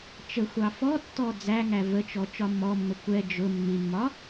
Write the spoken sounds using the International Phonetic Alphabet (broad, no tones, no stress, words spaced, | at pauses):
t͡ʃə xʷɑfɔtːɔ d͡zæŋæ vət͡ʃɔ t͡ʃɒmːɔmːə kʷɛ d͡ʒʊ mːimːɒ